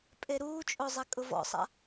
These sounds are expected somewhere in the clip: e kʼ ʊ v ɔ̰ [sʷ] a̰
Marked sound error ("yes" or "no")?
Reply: yes